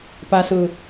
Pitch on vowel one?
low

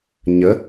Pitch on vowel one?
rising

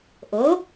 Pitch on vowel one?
rising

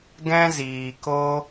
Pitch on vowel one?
high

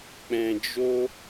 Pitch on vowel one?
low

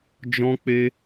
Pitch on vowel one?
high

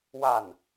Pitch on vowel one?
falling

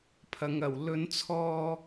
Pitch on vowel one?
low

